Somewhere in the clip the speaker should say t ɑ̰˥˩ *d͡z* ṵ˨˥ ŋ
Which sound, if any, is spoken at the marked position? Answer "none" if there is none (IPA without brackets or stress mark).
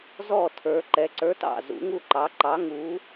z